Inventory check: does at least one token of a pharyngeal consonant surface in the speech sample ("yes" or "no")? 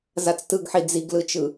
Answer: yes